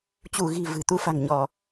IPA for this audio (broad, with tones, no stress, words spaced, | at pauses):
t͡ɕu˧˩ɣi̤˨˩ vɨ̤˨˩t̪u˧fa̤˨˩ŋɲɔ˧˩˨